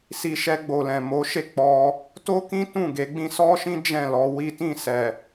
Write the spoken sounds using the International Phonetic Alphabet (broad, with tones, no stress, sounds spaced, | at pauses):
s i˧ ʃ ɛ˧ ɡ͡b o˨ l ɛ̃˨ m o˨˦ ʃ e˦˨ k͡p ɔ˧ | t o˦ k ĩ˦ t ũ˦˨ ɡ e˨˦ ɡ͡b ĩ˦ s ɔ˦ ʃ ĩ˦ d͡ʒ ɛ̃˦˨ l ɔ˧ w i˦ t ĩ˦˨ s ɛ˨